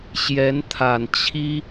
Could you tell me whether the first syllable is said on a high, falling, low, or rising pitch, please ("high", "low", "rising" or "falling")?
rising